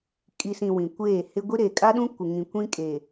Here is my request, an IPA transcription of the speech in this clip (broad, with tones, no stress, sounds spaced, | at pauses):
kʼ i˨ s ĩ˨ w ĩ˨ kʷ eː˦˨ h ɪ˦ ɡʷ i˦ ɾ e˨ kʼ a˦ ɗ ũ˦ kʷ ɪ˨ ŋ ĩ˨ kʷ ĩ˦ kʼ eː˨